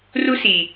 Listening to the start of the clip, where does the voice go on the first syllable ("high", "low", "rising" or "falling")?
high